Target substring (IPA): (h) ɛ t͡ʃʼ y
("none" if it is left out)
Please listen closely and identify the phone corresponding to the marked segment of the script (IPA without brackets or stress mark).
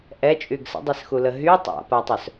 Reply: ʔ